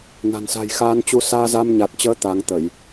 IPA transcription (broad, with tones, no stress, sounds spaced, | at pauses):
n a̤˨˩ n s a̤˨˩ j x aː˧ n t͡ɕ u˧ s aː˧ z a˧ m ɲ a˨˩ t̚ t͡ɕ əː˨˦ t̪ a˨˦ ŋ t̪ ə˧˩˨ j